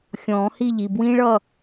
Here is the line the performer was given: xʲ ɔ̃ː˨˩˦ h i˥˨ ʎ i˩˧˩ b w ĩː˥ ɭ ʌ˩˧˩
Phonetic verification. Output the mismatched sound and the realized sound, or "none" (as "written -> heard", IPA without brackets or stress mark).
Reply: none